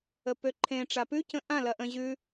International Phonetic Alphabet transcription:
ə p ø ǃʰ ẽ ʈ͡ʂ a p ʉ c ə̃ ʔ ã l ɐ ʔ ə̃ ʑ ʉ

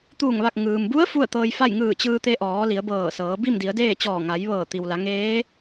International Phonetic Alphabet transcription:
t̪ uː˧˩ ŋ ʋ a˧˩ k̚ ŋ ɯː˩ m b u˧˥ ə̯ f u˥˨ ə̯ t̪ ɤː˧ j f a˥˨ j ŋ ɯː˧˩ t͡ɕ ɯː˧ t̪ e˧ ʔ ɔː˩˧ l i˩˧ ə̯ b ɤː˧˩ s ɤː˩˧ b i˥˨ m d i˩˧ ə̯ d eː˥˨ t͡ɕ ɔː˧˩ ŋ a˩˧ j ʋ ɤː˧˩ t̪ i˩ w l a˩˧ ŋ eː˧˥

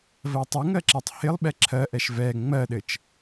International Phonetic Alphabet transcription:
v ɜ tˤ ɪ ŋ ɜ ǁ ɛ tˤ h ɪ lˠ ɓ ɛ ǁʰ ɜ ʔ ɛ ʃ v ɛ ŋ͡m ɜ ɗ ɘ t͡ʃ

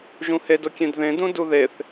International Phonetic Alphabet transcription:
ʒ ũ h e d o kʲ ẽ d ð ẽ d ũ d u ð e θ

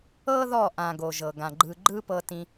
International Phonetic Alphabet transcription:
ɤ˦ ð ɔ˦˨ ʔ ã˨ ɡ o˨ ʒ ɤ˨ ɡ ã˨ ɡ͡ǃ ɯ˧ ɡ͡ǃ ɯ˦ p ɤ˧ t ĩ˧

